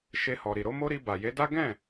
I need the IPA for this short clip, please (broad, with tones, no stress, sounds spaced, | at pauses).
ʃ e˧ h ɔ˨ ɾ i˨ ɾ o˧ m o˦ ɾ i˧ b a˨ j e˨˦ d a˦ ɡ ɛ̃˦˨